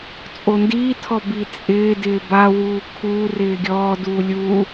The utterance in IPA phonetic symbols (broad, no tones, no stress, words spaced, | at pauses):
t͡sʼondiːtʰɔ bit͡sʼɪːdɪː bawuː kʰuːrɪː ɡʲɔːduː lʲu